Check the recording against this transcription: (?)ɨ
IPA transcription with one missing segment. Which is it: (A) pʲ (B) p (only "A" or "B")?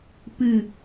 B